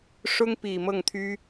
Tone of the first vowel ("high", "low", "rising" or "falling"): high